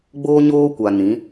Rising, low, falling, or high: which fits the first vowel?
high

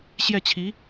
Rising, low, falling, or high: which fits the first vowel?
falling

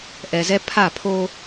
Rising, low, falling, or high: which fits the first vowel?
low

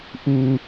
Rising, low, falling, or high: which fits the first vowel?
high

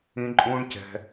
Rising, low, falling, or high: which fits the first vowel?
low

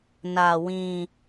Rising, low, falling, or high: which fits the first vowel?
low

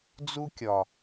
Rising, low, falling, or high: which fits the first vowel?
high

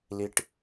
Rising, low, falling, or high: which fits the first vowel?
high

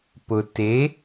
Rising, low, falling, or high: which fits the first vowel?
low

